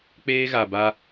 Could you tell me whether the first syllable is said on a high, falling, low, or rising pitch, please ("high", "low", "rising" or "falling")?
high